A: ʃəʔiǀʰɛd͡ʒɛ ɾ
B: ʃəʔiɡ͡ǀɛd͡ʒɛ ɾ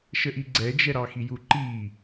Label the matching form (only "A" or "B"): B